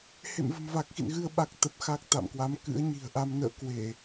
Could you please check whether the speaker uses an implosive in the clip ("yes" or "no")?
yes